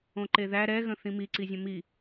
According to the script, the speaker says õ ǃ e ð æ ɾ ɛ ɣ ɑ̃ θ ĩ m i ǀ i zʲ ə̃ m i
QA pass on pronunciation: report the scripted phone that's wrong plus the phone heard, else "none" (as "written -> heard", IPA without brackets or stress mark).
ɑ̃ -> ə̃